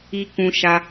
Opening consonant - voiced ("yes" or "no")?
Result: no